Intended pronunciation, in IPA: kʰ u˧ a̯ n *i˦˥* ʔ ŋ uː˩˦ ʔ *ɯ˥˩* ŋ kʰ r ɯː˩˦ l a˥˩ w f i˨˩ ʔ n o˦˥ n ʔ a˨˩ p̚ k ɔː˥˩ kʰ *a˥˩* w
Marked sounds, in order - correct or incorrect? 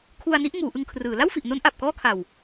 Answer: correct, incorrect: ɯ˧, incorrect: a˨˩

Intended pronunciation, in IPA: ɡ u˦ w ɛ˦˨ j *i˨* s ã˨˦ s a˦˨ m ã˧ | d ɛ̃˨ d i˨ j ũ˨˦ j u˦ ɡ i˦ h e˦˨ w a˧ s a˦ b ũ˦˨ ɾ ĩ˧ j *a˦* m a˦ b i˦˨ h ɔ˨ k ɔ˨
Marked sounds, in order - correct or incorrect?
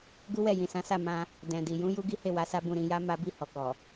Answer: incorrect: ĩ˨, correct

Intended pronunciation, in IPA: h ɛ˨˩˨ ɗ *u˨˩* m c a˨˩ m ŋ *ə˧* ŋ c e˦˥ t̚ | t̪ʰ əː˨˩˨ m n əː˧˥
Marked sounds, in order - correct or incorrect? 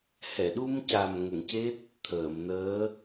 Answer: incorrect: u˧, incorrect: ə˨˩˨

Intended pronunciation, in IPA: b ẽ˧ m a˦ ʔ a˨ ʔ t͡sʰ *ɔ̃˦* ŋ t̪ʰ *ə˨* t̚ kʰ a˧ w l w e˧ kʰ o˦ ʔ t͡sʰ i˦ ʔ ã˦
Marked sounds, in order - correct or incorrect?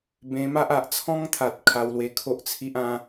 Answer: correct, incorrect: a˨

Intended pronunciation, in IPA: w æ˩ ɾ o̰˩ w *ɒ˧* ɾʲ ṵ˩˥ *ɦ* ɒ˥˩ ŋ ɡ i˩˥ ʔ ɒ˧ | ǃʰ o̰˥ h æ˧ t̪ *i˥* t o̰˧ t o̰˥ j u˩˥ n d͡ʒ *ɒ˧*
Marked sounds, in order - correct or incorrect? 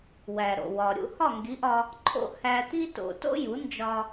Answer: incorrect: ɒ˩, incorrect: h, correct, correct

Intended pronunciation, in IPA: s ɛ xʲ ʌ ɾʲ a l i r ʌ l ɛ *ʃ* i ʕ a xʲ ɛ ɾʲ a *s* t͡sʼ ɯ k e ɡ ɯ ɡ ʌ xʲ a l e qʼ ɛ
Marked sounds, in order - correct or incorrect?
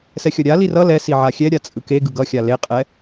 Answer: incorrect: s, incorrect: none

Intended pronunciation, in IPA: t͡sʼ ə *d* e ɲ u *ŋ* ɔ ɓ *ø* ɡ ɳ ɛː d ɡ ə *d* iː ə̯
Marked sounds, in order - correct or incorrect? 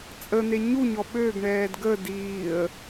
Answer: incorrect: n̪, incorrect: ɲ, correct, correct

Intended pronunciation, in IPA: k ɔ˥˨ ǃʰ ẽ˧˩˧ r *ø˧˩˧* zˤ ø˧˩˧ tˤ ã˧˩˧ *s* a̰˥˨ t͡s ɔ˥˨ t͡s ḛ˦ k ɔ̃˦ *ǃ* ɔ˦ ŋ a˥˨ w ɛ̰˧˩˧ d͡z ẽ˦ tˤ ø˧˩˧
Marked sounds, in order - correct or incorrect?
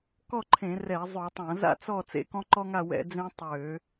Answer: incorrect: ɛ˧˩˧, incorrect: z, correct

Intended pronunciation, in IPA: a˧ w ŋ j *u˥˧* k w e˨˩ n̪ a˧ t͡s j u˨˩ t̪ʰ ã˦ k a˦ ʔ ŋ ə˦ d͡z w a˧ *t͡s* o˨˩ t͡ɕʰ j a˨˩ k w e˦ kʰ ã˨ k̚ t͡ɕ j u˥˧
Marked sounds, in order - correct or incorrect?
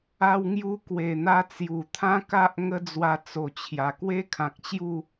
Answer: incorrect: u˧, correct

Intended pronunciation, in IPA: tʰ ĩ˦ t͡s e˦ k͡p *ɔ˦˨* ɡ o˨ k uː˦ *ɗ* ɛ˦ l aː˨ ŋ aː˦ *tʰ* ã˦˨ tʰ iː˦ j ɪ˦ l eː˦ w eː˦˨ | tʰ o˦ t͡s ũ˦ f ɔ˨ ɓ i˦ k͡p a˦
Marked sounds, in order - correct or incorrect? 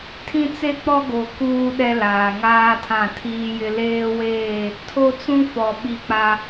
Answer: incorrect: ɔ˦, correct, correct

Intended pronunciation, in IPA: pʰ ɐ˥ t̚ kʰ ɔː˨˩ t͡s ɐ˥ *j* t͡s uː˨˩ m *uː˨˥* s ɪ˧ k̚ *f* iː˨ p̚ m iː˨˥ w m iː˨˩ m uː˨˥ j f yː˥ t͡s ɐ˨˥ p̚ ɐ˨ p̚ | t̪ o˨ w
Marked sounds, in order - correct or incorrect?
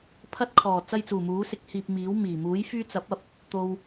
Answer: correct, correct, incorrect: h

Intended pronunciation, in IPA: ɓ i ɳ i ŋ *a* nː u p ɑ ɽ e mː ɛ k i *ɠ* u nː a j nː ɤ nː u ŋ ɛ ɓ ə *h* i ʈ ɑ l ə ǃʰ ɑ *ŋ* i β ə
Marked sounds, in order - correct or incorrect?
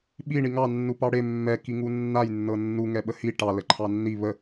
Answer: incorrect: ɑ, incorrect: ŋ, correct, incorrect: nː

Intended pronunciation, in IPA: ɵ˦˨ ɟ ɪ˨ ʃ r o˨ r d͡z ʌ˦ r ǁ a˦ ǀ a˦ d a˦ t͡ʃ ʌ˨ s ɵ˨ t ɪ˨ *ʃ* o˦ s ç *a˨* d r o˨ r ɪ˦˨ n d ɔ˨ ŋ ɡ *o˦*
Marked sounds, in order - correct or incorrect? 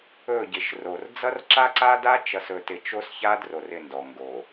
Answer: incorrect: t͡ʃ, incorrect: a˦, incorrect: o˨

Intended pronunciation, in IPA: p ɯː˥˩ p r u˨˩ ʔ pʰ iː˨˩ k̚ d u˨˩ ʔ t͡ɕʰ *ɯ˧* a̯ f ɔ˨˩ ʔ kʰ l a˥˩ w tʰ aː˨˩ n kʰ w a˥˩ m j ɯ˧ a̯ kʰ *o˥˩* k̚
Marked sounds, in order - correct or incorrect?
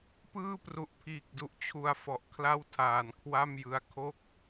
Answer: incorrect: u˧, correct

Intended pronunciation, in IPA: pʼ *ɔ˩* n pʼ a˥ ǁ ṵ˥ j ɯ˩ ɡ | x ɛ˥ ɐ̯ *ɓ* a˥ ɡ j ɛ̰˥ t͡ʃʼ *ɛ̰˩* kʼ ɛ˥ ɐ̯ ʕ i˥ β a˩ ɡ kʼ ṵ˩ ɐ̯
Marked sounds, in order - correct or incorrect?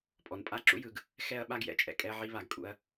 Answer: correct, correct, correct

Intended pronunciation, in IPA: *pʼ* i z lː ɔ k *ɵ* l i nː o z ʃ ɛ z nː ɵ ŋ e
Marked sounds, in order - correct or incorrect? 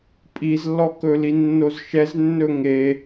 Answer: correct, correct

